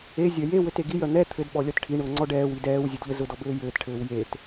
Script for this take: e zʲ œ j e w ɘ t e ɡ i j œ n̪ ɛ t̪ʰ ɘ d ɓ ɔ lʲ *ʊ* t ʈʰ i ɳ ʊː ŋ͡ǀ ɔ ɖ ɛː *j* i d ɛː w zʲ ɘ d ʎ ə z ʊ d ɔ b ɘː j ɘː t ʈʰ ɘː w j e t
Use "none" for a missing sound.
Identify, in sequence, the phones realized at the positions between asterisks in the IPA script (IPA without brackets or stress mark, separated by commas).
ɔ, w